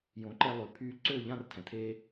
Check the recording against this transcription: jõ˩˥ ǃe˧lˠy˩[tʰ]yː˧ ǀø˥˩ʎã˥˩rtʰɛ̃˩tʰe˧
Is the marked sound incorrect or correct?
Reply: incorrect